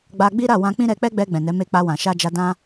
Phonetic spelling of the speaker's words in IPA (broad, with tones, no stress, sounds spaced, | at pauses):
ɡ͡b a˧ ɡ͡b i˦ ɾ a˦˨ w ã˧ k͡p ĩ˦ ɾ ɛ˧ k͡p ɛ˦ ɡ͡b ɛ˧ ɡ͡b ɛ̃˨ n ɛ˨˦ m e˧ k͡p a˧ w ã˨ ʃ a˧ d͡ʒ a˧ d ã˦